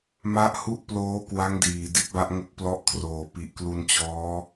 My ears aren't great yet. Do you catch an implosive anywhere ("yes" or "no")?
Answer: no